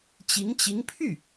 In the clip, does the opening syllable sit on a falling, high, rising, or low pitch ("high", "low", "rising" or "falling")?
rising